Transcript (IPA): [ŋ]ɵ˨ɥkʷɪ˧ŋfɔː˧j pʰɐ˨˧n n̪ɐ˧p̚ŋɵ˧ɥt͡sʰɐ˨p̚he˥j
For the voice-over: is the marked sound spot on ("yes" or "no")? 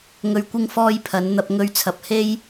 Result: yes